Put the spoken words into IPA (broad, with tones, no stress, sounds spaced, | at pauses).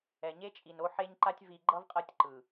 ɛ˨ ɲ e˦ t͡ʃʼ i˨ n o˦ ħ e˦ ɲ ǃ a˦ tʲ v i˨ ɡ͡ǃ ʌ˦ v qʼ ʌ˦˨ tʲ ǃ ɯ˨